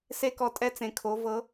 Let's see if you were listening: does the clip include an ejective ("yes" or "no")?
yes